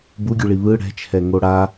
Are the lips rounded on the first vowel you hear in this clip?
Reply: yes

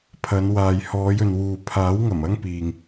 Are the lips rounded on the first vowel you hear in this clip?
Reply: no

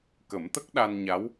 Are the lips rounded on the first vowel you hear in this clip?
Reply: no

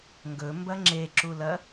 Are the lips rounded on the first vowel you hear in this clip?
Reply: yes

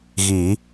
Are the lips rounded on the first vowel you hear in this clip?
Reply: no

